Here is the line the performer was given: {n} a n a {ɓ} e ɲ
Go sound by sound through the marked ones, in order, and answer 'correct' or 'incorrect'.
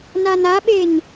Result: correct, correct

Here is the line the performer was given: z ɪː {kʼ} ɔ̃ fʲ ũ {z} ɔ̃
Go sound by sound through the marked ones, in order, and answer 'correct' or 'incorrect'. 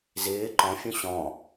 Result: incorrect, incorrect

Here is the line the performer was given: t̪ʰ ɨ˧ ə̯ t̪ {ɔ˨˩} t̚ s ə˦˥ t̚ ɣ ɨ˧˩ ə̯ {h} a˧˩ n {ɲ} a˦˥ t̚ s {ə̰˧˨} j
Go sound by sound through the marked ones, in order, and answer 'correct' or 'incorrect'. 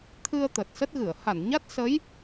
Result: incorrect, correct, correct, incorrect

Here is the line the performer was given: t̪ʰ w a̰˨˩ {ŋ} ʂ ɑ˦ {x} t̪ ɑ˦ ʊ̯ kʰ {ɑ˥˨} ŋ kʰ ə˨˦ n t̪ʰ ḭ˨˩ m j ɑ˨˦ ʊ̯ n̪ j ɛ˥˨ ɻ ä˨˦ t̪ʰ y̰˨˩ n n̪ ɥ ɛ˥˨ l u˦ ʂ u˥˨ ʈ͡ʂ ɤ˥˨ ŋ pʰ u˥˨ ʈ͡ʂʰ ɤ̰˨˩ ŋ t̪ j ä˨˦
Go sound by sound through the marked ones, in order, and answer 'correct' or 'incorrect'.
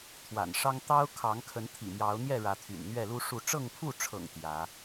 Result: incorrect, incorrect, incorrect

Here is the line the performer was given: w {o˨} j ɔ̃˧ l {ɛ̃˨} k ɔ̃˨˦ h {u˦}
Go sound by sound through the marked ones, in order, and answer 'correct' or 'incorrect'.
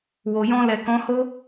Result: correct, incorrect, incorrect

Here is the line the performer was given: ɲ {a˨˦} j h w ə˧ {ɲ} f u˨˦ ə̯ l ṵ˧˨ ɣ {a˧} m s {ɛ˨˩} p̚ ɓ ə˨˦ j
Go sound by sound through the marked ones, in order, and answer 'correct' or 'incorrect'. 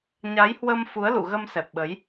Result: correct, incorrect, incorrect, correct

